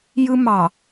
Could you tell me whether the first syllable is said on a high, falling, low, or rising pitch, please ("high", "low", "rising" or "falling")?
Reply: high